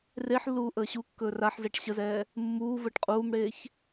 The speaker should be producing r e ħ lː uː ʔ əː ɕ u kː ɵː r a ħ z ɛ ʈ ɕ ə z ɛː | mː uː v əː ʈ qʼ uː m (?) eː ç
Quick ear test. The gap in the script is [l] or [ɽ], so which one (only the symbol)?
ɽ